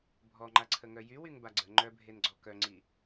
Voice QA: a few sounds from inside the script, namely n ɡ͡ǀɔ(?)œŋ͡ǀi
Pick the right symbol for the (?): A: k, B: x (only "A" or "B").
A